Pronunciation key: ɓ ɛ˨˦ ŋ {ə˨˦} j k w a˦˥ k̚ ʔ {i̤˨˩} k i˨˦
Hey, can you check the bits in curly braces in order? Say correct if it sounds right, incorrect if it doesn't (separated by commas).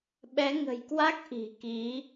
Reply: incorrect, correct